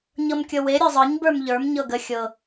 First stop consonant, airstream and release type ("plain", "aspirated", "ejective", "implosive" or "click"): plain